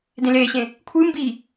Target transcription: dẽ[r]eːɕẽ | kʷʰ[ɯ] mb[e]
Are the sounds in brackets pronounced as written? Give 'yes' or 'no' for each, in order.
no, yes, no

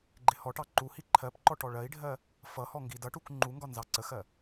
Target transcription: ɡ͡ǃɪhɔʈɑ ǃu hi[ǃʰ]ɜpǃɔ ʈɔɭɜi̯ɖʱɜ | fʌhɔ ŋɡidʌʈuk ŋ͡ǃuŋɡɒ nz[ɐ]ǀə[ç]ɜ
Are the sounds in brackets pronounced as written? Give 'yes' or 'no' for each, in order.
yes, no, no

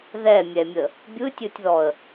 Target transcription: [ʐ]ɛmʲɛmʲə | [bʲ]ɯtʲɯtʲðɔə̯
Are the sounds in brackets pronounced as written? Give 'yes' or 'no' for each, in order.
no, yes

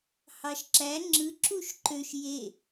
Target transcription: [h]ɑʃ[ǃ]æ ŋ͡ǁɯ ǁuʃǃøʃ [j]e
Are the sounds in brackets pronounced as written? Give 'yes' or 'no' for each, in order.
yes, no, yes

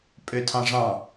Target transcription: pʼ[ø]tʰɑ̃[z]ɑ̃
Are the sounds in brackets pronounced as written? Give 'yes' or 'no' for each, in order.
yes, no

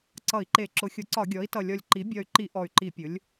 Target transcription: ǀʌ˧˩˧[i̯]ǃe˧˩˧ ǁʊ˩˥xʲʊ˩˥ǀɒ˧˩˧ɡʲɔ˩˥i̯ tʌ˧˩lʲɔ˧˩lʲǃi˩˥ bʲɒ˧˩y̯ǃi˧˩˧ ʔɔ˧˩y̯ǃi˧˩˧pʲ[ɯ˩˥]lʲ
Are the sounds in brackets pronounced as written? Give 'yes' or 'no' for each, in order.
yes, no

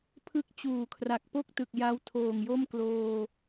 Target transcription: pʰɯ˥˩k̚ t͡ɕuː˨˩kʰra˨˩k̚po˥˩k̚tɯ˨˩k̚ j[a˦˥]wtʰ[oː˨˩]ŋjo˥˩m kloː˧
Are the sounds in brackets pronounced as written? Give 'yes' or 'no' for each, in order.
yes, yes

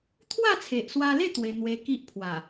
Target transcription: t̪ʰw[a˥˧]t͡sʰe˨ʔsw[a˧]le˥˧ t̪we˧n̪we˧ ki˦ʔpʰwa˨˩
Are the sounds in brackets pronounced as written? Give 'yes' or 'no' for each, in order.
yes, yes

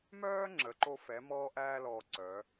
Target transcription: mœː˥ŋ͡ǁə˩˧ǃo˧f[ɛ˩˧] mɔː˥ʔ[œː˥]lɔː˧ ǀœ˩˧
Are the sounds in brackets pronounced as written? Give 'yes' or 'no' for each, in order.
yes, no

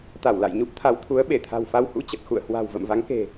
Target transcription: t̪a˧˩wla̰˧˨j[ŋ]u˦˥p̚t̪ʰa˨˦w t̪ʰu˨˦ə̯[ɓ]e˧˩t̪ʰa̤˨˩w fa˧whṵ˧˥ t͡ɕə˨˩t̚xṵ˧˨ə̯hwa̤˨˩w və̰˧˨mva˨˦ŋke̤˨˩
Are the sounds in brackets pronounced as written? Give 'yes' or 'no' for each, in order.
no, yes

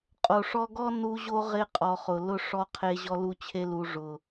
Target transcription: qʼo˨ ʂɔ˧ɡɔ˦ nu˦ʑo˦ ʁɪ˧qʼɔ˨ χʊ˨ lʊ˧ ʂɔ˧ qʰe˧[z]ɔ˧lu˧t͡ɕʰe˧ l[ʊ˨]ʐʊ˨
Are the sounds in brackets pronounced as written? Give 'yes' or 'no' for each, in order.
no, no

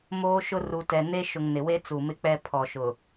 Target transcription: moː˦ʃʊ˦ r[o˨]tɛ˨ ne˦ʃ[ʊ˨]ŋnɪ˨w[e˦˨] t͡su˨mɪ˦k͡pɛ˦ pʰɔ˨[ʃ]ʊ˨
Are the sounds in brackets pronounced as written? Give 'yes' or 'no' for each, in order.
no, yes, no, yes

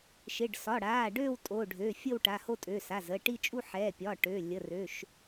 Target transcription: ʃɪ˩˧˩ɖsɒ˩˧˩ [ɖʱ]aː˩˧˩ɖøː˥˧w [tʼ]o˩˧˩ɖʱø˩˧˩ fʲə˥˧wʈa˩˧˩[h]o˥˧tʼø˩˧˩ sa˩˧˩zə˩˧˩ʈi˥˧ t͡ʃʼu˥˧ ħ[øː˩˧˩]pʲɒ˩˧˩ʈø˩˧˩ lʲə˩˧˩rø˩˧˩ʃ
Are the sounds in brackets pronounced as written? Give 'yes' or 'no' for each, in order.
no, yes, yes, no

